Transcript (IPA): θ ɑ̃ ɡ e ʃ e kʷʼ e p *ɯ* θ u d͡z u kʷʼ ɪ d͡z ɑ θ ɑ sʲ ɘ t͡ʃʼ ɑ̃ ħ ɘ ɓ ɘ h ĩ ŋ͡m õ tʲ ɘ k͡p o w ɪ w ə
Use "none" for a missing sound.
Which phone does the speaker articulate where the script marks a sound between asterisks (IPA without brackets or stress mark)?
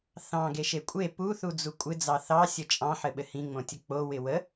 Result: u